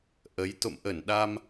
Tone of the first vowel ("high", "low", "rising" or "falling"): rising